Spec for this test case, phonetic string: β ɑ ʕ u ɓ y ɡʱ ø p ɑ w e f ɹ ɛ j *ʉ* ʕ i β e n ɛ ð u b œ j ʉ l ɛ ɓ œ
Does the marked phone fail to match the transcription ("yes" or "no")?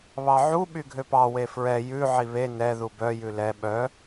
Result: no